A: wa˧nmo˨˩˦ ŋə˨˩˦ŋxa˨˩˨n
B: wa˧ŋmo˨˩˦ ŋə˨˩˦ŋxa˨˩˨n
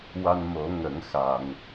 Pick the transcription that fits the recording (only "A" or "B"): A